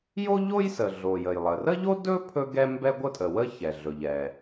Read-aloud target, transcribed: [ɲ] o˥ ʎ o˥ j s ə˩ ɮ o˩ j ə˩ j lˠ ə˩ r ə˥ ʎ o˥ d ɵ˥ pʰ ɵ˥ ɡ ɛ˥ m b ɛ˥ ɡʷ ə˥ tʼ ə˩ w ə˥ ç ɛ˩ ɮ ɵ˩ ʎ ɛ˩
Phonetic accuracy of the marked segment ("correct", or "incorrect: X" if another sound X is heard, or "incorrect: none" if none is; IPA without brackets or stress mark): incorrect: j